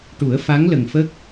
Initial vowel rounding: rounded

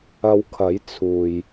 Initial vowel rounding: unrounded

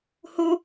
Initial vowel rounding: rounded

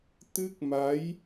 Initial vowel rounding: unrounded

